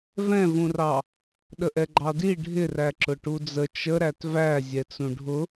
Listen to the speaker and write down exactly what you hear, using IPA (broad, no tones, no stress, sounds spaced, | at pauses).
v ɛ̃ v ũ r ɑ | ɗ ə ʔ ɛ ɡ͡ǃ ɑ d i ɖʱ ɪ r æ ǁ ʊ ʈ u d͡z ə t͡ʃ ə ɾ æ t v æ zʲ ɛ t͡s ũ ɖʱ ʊ